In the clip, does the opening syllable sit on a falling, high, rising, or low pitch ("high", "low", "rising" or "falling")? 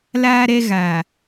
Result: high